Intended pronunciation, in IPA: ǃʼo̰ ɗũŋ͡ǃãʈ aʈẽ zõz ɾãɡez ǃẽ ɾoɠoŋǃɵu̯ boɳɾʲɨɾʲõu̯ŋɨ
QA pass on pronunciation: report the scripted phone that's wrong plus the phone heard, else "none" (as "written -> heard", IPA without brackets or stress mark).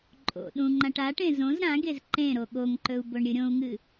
none